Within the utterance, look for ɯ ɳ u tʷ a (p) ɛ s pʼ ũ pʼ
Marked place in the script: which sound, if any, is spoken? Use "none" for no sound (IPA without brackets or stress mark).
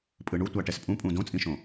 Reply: ʈ